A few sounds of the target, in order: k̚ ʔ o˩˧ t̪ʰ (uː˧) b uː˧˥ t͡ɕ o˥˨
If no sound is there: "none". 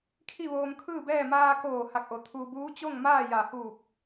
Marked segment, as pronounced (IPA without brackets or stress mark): uː˧